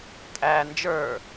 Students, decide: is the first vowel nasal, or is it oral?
oral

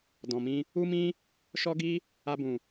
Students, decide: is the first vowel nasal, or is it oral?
nasal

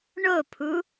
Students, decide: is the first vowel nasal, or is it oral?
oral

